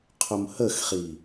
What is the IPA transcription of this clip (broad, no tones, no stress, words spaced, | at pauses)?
qʰʊmhəxχi